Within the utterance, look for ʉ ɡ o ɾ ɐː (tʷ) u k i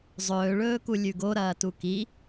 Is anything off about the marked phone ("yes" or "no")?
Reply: yes